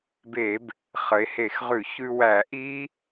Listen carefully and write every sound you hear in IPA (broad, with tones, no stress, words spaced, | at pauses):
be˧˩˧b | χə˩˧e̯ he˧˩˧xʁʉ˧˩˧çʉ˧wæ˧˩˧ ʔi˦˥